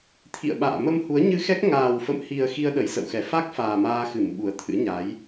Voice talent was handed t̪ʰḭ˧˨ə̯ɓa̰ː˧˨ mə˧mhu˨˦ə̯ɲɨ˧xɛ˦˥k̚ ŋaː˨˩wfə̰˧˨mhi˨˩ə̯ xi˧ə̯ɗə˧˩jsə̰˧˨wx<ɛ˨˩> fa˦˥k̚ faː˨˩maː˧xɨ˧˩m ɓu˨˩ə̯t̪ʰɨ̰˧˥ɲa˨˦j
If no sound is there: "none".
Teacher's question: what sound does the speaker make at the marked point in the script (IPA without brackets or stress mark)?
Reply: ɛ˧˩